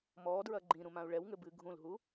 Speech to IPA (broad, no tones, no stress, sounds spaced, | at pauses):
m ɔː d ɹ ɐ ɡ͡ǃ ĩ ɾ ũ m ã u̯ ɭ ɛ w ŋ ɘ b ɨ ɡʱ ũ l ɦ u